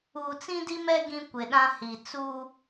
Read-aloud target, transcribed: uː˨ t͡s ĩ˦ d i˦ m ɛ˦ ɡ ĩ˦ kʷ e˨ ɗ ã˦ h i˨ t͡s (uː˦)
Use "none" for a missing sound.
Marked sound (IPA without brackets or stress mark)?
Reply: uː˦